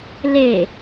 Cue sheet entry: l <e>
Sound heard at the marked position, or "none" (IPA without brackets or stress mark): e